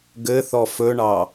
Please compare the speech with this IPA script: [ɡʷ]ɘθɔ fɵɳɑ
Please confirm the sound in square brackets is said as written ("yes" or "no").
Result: no